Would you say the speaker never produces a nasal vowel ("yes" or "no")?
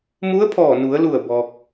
yes